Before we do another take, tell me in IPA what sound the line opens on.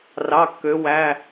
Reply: r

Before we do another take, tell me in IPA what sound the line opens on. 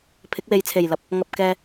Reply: pʰ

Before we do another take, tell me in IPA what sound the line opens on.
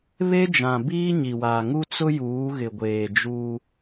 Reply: β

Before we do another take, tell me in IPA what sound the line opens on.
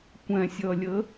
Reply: kʷ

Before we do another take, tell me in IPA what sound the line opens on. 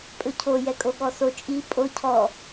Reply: pʼ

